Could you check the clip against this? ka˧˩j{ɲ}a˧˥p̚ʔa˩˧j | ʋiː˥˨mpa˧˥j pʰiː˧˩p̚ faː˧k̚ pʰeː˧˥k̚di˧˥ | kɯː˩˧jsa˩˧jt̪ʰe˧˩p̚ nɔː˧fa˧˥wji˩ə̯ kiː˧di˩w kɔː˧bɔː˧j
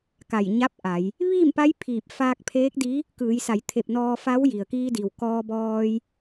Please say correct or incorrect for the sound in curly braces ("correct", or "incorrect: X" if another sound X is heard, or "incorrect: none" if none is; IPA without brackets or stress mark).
correct